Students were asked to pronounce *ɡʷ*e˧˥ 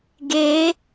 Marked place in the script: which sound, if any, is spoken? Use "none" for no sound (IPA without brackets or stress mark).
ɡ